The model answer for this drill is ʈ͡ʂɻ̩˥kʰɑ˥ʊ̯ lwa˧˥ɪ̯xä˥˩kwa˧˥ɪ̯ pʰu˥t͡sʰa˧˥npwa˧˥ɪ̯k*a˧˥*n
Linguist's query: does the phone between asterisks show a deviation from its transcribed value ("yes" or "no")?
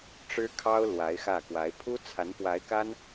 yes